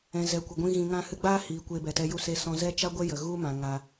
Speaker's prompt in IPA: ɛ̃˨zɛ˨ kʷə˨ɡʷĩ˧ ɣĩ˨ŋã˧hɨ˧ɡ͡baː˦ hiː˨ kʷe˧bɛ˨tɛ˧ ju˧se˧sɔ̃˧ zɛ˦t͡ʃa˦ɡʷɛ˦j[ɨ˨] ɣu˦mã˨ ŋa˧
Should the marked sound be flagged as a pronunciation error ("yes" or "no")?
yes